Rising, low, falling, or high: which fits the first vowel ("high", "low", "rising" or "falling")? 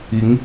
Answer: rising